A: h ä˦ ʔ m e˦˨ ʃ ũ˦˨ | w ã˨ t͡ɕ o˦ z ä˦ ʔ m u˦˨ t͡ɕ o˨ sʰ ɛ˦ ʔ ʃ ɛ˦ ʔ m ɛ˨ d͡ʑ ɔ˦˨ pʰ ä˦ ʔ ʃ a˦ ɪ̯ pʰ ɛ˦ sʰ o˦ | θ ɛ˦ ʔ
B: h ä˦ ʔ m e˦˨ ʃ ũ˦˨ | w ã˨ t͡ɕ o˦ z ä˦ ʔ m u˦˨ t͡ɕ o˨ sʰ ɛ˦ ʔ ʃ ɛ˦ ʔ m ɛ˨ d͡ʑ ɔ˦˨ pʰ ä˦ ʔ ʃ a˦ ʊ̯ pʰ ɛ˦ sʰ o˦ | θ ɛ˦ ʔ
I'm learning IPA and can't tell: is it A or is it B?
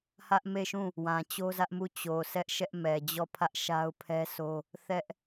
B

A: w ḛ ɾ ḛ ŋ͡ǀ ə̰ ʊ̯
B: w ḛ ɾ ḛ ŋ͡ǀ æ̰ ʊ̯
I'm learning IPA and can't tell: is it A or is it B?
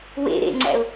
B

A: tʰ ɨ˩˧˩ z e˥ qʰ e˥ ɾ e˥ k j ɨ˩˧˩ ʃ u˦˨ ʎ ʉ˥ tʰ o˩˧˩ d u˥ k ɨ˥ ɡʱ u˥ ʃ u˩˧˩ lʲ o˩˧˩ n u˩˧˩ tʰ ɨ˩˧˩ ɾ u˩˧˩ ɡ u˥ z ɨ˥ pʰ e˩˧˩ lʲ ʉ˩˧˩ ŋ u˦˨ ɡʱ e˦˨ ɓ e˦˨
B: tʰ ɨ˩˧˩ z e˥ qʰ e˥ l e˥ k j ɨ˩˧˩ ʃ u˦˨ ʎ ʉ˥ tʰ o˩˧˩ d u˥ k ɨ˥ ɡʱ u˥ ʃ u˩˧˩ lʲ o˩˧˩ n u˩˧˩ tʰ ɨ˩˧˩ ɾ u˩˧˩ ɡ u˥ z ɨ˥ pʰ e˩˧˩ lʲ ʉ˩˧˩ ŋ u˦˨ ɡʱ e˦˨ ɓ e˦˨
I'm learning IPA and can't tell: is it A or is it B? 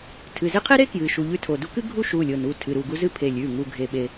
A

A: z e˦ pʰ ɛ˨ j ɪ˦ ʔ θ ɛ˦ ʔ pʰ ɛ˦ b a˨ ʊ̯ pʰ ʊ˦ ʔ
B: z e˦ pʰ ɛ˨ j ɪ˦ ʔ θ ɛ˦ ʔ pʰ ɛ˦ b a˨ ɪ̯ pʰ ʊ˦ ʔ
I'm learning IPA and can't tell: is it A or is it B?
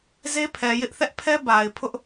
B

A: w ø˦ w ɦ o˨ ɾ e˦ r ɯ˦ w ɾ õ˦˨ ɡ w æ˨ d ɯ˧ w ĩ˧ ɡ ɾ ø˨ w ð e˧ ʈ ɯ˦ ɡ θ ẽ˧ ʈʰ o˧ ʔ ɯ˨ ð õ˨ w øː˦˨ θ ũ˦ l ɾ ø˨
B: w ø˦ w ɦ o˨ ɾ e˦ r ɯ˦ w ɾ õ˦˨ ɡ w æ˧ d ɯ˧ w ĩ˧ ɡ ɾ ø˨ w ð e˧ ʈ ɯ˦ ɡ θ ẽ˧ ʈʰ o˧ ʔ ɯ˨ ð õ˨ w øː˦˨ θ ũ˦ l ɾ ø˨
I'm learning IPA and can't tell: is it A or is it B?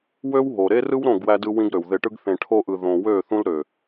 B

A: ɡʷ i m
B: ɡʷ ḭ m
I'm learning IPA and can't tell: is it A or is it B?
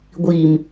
A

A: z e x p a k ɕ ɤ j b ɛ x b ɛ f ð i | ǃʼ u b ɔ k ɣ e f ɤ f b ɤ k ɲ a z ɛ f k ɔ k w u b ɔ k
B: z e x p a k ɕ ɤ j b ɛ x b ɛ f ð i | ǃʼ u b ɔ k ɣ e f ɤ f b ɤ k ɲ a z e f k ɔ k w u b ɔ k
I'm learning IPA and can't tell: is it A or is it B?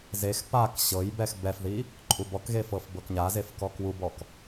B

